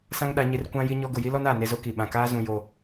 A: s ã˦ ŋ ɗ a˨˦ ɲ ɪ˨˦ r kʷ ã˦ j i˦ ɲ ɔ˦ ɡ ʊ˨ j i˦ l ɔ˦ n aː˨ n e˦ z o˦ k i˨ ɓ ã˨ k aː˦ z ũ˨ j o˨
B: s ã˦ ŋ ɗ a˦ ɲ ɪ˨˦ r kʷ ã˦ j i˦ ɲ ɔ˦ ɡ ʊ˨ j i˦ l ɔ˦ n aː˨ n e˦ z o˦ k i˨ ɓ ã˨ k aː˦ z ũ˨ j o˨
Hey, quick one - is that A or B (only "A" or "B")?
A